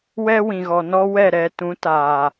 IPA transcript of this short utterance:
w ɛ˦ w ĩ˨ ɣ ɔ˨ n ɔ˦ w ɛ˦˨ ɾ ɛ˧ t ũ˨˦ t aː˨

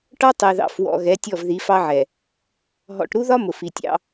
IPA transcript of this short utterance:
ʈ ɒ˦ tˤ ɛ˨ ð ɑ̰˨ f w ɔ̰˨ ɣ ɛ˨˦ tʲ ɔ˦˨ v ð i˨˦ f ɑ˦ ʕ ɛ˨ | ɦ ɔ̰˨ ʈ ɾ u˦ ð ɒ˦ m ʊ˨ f i˨ tʲ ɑ̰˦

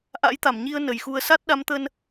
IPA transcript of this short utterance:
ʔ a̰˧˥ j t̪ a˧˩ m ɲ i˧ ə̯ n ə˨˩ j x u˧ ə̯ s a˦˥ t̚ ɗ a˨˦ m t̪ ə˧ n

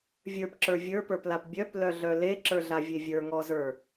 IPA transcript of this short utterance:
vʲ ə˞ p ǁ ə˞ vʲ ə˞ p ə˞ p l a p bʲ œ p l œ ɮ œ l e ǁ ə˞ ɮ a vʲ e vʲ ə˞ ŋ ɔ z ə˞

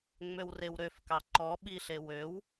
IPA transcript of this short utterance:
ŋ͡m ø w r e w ɾ ø f k ɑ ǃ ɔ ɓ i ɬ e w ø w

